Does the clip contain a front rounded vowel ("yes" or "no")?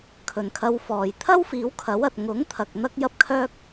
yes